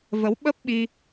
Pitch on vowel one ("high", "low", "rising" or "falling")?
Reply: rising